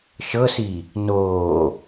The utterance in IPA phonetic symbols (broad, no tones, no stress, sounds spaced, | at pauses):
ʃ ɤ s i | n oː